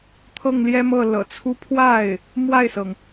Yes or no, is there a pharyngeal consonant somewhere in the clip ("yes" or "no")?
no